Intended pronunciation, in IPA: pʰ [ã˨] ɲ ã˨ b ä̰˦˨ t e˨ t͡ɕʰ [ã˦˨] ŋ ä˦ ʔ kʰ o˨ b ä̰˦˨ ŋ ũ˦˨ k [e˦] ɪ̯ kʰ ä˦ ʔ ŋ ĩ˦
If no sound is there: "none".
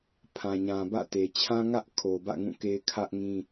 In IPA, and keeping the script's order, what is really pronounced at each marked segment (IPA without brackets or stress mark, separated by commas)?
ã˨, ã˦, e˦